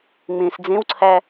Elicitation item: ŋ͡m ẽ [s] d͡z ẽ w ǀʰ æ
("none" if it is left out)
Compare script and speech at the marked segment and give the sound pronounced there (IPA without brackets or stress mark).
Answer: s